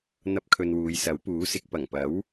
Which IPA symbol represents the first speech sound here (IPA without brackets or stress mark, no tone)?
n̪